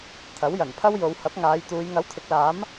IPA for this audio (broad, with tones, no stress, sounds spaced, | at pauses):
t̪ʰ ɐ˨˥ w j ɐ˨˩ n pʰ ɐ˥ w j o˨˧ w h ɐ˨˥ p̚ ŋ aː˨˧ j t̪ uː˨˧ j ŋ ɐ˨˥ w t̪ʰ ɪ˨˥ k̚ l aː˨˥ m